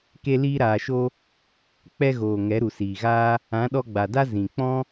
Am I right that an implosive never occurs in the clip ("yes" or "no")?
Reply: no